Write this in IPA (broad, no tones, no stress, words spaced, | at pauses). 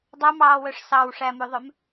dˤœmɑːwœʂ sɑwʂæmʉðˤœm